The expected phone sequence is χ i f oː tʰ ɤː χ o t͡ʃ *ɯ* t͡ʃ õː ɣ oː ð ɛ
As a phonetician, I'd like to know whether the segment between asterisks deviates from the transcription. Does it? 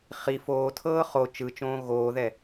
no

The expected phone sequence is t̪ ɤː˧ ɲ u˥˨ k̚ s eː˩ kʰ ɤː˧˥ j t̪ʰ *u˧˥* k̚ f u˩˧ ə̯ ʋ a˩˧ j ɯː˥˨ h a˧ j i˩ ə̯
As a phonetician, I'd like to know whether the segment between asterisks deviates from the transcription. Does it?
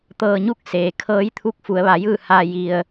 no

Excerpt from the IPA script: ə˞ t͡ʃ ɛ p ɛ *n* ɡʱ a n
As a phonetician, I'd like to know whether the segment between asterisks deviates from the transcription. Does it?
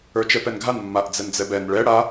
no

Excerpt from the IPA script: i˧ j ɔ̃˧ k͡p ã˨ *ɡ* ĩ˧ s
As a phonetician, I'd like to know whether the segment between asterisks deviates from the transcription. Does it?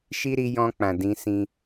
yes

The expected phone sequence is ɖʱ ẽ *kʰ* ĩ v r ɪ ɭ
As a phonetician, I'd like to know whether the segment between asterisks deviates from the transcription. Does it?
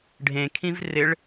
no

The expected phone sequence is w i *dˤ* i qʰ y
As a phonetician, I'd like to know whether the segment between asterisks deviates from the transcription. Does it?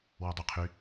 no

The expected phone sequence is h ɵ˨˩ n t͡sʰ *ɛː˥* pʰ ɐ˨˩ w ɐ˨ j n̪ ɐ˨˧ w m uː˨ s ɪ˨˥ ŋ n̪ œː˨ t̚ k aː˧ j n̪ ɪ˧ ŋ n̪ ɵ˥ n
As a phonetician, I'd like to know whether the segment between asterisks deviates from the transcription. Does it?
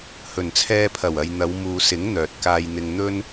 yes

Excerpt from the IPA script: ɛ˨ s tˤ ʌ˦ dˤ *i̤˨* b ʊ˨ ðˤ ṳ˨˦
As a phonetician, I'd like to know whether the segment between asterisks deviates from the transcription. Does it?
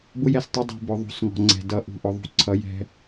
no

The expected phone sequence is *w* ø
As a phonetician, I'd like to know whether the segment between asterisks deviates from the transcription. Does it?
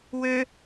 no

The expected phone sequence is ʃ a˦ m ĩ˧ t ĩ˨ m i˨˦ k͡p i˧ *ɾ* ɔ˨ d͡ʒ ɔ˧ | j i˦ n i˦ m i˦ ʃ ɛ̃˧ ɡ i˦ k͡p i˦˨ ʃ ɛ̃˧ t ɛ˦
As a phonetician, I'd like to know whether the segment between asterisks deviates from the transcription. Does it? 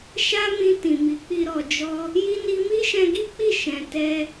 no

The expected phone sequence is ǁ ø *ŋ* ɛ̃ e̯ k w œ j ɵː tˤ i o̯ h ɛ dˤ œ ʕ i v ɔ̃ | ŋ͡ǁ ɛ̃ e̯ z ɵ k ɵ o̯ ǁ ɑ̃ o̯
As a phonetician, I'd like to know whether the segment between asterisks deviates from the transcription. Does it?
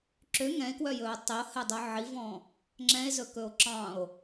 no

